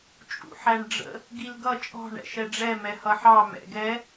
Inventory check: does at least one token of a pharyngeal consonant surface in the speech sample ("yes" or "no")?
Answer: yes